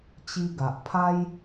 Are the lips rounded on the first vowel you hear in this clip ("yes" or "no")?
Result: no